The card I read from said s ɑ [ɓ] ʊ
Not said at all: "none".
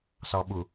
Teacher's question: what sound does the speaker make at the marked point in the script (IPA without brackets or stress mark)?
ɓ